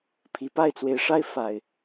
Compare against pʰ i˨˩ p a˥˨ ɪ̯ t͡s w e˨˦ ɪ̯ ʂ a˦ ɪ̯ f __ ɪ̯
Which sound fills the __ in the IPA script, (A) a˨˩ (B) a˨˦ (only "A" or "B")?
A